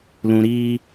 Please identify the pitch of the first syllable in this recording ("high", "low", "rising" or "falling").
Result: low